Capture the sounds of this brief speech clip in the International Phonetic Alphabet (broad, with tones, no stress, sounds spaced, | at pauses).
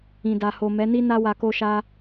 ĩ˨ d a˨ h o˨ m ɛ˨˦ n i˦ n a˦ w a˧ k o˧ ʃ a˧